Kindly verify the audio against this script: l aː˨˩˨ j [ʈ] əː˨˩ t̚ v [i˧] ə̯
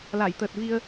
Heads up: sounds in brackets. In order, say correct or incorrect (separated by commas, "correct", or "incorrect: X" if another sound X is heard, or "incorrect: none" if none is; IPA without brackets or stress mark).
incorrect: t̪, correct